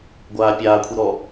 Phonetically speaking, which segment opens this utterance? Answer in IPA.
ɡʷ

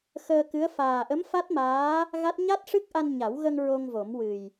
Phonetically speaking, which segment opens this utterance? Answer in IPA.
x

